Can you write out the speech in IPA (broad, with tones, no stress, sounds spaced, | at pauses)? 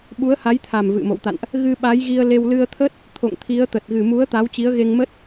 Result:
ɓ u˨˦ ə̯ h a˨˦ j t̪ʰ a˨˩ m v ɨ̰˧˨ m o̰˧˨ w t̪ a̰˧˨ n ʔ | ɣ ɨ˧ ɓ a˨˦ j ɣ i˧ ə̯ l e˧ w l ɨ˧ ə̯ t̪ʰ ə˦˥ t̚ | t̪ʰ o̰˧˨ ŋ t̪ʰ i˨˦ ə̯ t̪ ə˨˩ t̚ ɣ ɨ˨˩ m u˨˦ ə̯ t̪ a˨˦ w t͡ɕ i˨˦ ə̯ ɣ e˧ ŋ m ə˦˥ t̚